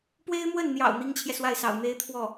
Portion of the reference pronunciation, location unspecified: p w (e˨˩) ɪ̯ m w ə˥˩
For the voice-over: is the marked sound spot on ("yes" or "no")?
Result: no